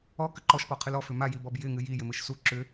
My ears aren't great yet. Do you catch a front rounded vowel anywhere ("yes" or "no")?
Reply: yes